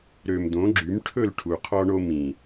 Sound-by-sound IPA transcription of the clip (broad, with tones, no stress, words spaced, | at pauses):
ɾø˧m d̪õ˨˦ɡ͡ǁy˨˦m ʈʰɵ˦˨lʈʰu˨qʰɔ˧ɳo˧ mĩ˨